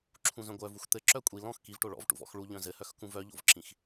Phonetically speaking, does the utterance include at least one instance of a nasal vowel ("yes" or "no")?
yes